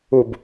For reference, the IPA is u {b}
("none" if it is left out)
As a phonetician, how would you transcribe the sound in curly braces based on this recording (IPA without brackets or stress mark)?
b